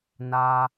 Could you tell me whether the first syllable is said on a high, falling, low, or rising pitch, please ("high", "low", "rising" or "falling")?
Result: high